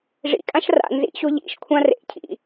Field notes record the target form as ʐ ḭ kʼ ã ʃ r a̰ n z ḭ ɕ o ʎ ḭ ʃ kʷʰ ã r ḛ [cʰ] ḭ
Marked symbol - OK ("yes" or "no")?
yes